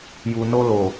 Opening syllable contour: low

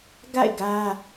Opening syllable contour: falling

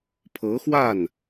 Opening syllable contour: rising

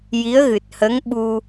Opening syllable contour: rising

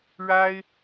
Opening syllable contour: high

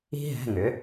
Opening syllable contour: high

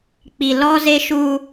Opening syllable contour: low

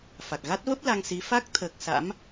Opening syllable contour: low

